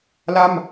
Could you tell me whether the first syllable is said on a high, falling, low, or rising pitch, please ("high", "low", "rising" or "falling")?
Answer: falling